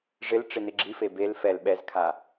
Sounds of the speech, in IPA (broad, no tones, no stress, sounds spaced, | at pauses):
ʐ ɪ l ʈ͡ʂ ɪ n ɪ ɡ͡ǁ i f e b e l f ɛ l ɓ ɛ z kʰ a